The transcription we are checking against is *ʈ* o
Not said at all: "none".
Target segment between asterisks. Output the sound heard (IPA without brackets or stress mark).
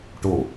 ʈ